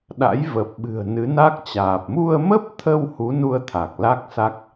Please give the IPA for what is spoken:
ɗ a̰˧˥ j v ə˨˩ p̚ ɓ ɨ̤˨˩ ə̯ n ɨ˨˦ n a˦˥ k̚ t͡ɕ aː˨˩ p̚ m u˧ ə̯ m ə˦˥ p̚ t̪ʰ ə˧ w h u˨˦ n u˧ ə̯ t̪ʰ a˨˩ k̚ l a˦˥ k̚ s a˦˥ k̚

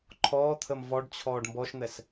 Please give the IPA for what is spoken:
ǃʰ ɔː t̪ʰ ə m v ɔ ɖ t͡ɕʰ ɔː ɖ m b ɔ ʃ n̪ ɛ s

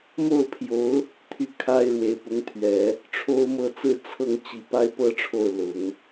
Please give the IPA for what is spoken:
m o˥˩ ʊ̯ pʰ j o˧˥ ʊ̯ | t̪ʰ y˥˩ kʰ a˥ ɪ̯ ɻ w e˨˩ ɪ̯ p ʊ˧˥ ŋ t̪ʰ ɥ ɛ˨˩˦ | ʈ͡ʂʰ o˥ ʊ̯ m ɤ˥˩ t͡s ɹ̩˥ t͡sʰ ɤ˥˩ ŋ t͡ɕ i˨˩ p a˥ ɪ̯ p ɤ˥ ʈ͡ʂʰ o˥˩ ʊ̯ l ʊ˨˩˦ ŋ

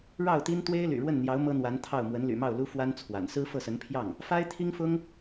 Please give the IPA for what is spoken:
ɻ ɑ˥˩ ʊ̯ t̪ i˥ n t̪ w e˥ ɪ̯ l y̰˨˩ ɻ w ə˥˩ n n̪ j ɑ˧˥ ʊ̯ m ɤ˥ n̪ w a˧˥ n t̪ʰ ɑ˥˩ ʊ̯ m w ə˧˥ n l y̰˨˩ m ɑ˥˩ ʊ̯ l u˥ f w a˥ n t͡sʰ w a̰˨˩ n s ɹ̩˥ f ɤ˥˩ s ə˧˥ n pʰ j ɑ˥˩ ŋ | f a˥ ɪ̯ t̪ʰ i˥ ŋ f ʊ˥ ŋ

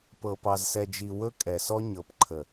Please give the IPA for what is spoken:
p ɤ˨ p ɑ˨ z s ɛ˨ d͡ʒ i˨ w ɵ˦ kʼ ɛ˨ s ɔ˦ ɲ ɤ˨ p ǃʰ ə˨

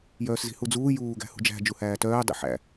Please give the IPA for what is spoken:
j œː s z i̤ h u d͡z uː j uː ɡ æ̤ h ṳ d͡ʒ æ̤ d͡ʒ u h æː t œː dˤ ḭ ħ æ̰

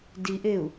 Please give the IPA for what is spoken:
d i ʔ e u̯

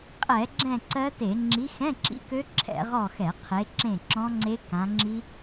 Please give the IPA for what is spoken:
qʼ ɛ˧˩˧ ɡ͡ǁ ɛ̃˦˨ ǀ ɜ˦˥ t e˧˩˧ ŋ͡ǁ i˨˦ x ɛ̃˧˥˧ ǁ ḭ˦˥ k ø˦˥ ǁʰ ɛ̰˧˩˧ ʁ ɔ˦˨ x ɛ˧˩˧ qʰ e˨˦ ǁ ẽ˦˨ ǁ ɔ̃˦˥ ŋ͡ǀ e˦˥ k ã˨˦ ŋ͡ǁ i˦˥

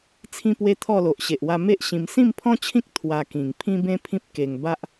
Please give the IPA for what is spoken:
t͡sʰ ĩ˦ p w e˦ t̪ʰ ɔ˥˧ l o˨ ʔ ɕ e˨ ʔ w a˧ m e˦ ʔ ɕ ĩ˧ m s ĩ˥˧ m pʰ ɔ̃˦ t͡ɕʰ ĩ˦ k̚ t̪ʰ w a˧ k ĩ˨˩ ŋ pʰ ĩ˦ b ẽ˦ pʰ ĩ˦ p̚ k e˧ ŋ b a˦ ʔ

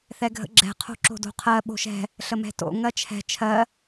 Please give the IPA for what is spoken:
θ ɛ ɡʱ ə̰ ɡ͡ǁ ɛ̤ qʰ o̤ ǁ o̤ d o̤ qʰ ɜ ɓ o̤ ʃ ɛ̤ | ɬ ə m ɛ̤ t o̰ ŋ ɜ t͡ʃʰ ɛ̤ t͡ʃʰ ɜ

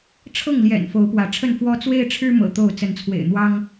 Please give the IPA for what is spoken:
ʈ͡ʂʰ ɤ˥˨ ŋ l j ɛ̰˨˩ n f o˨˦ ʊ̯ p w ä˨˦ ʈ͡ʂʰ ə˥˨ n f w ɔ˦ t͡s w e˦ ɪ̯ ʈ͡ʂʰ ɻ̩˦ m ɤ̰˨˩ t̪ o˥˨ ʊ̯ t͡s ə˨˦ n t͡sʰ w ḛ˨˩ ɪ̯ n̪ w ɑ˦ ŋ

